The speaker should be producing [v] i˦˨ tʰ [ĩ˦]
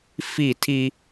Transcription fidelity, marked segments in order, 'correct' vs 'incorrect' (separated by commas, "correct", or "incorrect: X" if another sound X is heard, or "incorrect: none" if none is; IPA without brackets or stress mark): incorrect: f, incorrect: i˦